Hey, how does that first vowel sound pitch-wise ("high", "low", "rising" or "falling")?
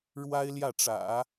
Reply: high